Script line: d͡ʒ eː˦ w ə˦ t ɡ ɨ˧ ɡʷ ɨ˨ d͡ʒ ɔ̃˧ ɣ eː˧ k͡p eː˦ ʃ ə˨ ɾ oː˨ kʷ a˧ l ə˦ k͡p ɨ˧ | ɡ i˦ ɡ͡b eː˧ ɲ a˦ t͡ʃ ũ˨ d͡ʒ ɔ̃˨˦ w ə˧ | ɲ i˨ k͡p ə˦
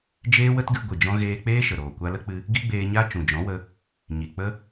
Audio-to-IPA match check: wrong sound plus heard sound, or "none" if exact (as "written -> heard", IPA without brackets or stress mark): none